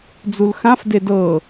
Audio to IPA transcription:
d͡z u l x ã f d e d ɤ

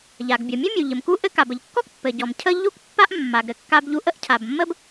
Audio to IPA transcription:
ʎ a˩ ɡ bʲ ɔ˩ mʲ ɘ˥ mʲ u˩ ʎ ɘ˩ m k u˥ ʔ ɘ˥ k a˩ b ə˩ ʎ kː ɔ˥ k pː ɘ˩ ɟ ɔ˩ m cʰ ə˥ ʎ u˥ k pː a˥ ʔ mː a˩ ɡ ɾ ɘ˩ kː a˥ b ʎ u˥ ʔ ə˥ ʔ cʰ a˩ b mː ə˥ b

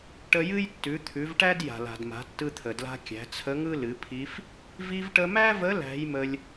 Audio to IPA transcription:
ʈ ə˧ j ɨ˥ j tː ʉ˩˧ t̪ʰ ʉ˩˧ v ʈ æ˥ d j a̤˩ l a̤˩ d m a̤˩˧ tː ɯ˧ t̪ʰ ə˩ d l a̤˧ kʲ æ̤˩˧ t͡sʰ ə˧˥ ŋ ɯ˥ l ɨ˩˧ pʰ i˧˥ f | v i˧ v ʈ ə˧ m æ˥ v ə˧˥ l æ̤˧˥ j m ə˧ lʲ

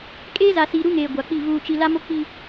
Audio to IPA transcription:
kʼ eː˦ z a˨ s iː˨ ɾ u˦ ŋ eː˨ ɡʷ a˨ k͡p i˦˨ v uː˨ t͡ʃ i˨ l a˦ m o˦ k͡p i˦

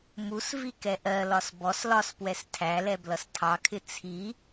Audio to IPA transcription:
m u s v i k ɛ ʔ ɜ l ɒ s b ɔ s l ɒ s p w ɛ s tʰ æ l ɛ b l ʌ s tʰ ɑ kʰ ɪ t͡sʰ i

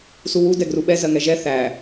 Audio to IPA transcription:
s u w u d ɛ ɡ r u ɓ ɛ z ɜ ŋ ɛ ʒ ɛ θ æ

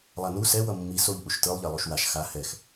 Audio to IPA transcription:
lˠ a n u s ɛ w ʌ mː i s o ʎ ʔ u ʃ t ɯ lˠ ʎ e lˠ o ʃ w a ʃ x a h ɛ x

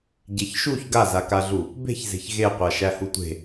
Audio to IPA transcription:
ɟ e ç ʃ u ç ɡ a z a k a ɮ u | b e̤ ç z e̤ ç ɣ e qʷ a ʃ æ h u tʷ e̤

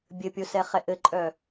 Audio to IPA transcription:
bʲ ɘ pʲ o s ɛ χ ɛ ʔ ɘ ǃʼ œ

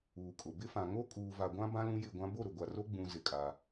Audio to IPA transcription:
uː˨ kʼ ʊ˨ b ɪ˦ f ã˨ ŋ o˦ kʼ uː˨ v a˨ ɡʷ ã˦ b ã˦ l ũ˦ j ɪ˦˨ ɡʷ ã˦ b o˦˨ ɾ ʊ˨ ɡʷ a˨ r o˦ ɡ͡b ũ˨ z ɪ˦ kʼ a˦

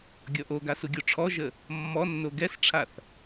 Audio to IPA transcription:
ɡʲ ɔ ʔ o ɡ a s u ɡʲ o ʈ͡ʂʰ ɔ ʒ ə | mː ɔ nː o ɡ ɛ s ʈ͡ʂʰ a θ

